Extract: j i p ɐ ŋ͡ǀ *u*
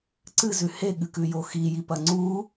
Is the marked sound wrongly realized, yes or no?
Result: no